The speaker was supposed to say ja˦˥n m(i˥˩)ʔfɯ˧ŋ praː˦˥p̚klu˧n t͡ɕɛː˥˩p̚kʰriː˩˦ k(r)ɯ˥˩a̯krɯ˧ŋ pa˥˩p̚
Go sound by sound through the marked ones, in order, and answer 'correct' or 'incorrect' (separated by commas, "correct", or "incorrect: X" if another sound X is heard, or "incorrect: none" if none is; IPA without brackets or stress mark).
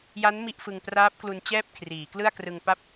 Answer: correct, incorrect: l